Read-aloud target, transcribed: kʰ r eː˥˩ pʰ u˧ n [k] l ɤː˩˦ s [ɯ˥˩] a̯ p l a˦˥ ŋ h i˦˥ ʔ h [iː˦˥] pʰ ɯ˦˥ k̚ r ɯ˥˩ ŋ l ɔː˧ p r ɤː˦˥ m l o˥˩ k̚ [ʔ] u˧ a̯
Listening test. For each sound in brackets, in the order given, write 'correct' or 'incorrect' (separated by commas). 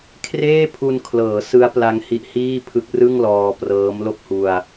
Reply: incorrect, incorrect, incorrect, incorrect